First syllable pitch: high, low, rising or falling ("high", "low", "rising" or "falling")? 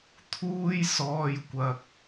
high